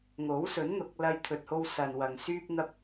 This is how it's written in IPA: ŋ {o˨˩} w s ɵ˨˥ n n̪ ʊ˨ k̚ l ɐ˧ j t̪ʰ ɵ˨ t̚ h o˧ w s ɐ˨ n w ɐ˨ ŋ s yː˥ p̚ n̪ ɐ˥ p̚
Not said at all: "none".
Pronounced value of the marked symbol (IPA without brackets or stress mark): o˨˥